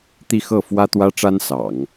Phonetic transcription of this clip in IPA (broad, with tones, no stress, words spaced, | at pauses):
t̪i˥˧xɤ˥˩ fwä˥t̪wä˥ʈ͡ʂa˥n sɑ̰˨˩˦ŋ